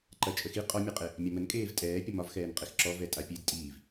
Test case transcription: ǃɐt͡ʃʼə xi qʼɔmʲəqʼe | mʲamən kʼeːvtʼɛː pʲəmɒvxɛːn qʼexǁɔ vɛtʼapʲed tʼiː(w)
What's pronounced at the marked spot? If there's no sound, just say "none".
v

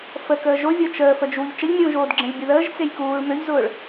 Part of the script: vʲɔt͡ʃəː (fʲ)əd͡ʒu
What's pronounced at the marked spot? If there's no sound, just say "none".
f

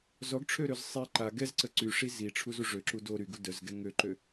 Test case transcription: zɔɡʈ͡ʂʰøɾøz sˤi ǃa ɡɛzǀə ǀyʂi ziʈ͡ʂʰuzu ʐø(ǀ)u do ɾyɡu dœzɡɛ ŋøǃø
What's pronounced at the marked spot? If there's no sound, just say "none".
ǁ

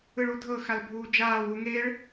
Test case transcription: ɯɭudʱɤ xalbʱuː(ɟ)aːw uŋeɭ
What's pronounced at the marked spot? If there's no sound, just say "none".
d͡ʒ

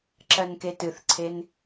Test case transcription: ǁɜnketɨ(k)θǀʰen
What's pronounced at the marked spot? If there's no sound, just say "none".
none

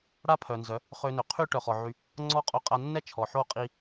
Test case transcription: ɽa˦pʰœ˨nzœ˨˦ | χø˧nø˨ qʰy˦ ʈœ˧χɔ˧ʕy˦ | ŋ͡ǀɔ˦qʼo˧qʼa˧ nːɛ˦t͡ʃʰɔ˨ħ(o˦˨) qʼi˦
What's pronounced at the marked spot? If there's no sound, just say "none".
o˦˨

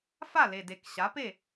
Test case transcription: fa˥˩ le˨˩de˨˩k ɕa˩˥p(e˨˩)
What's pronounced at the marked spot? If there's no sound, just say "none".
e˥˩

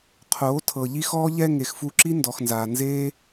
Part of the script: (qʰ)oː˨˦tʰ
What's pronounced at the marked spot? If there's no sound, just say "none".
qʰ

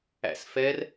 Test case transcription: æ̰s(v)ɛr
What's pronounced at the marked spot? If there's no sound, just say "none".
f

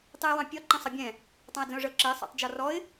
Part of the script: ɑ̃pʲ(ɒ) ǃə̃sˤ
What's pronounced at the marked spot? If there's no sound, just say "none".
ɒ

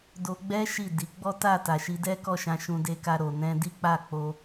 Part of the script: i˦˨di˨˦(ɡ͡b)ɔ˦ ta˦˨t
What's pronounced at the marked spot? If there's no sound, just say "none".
ɡ͡b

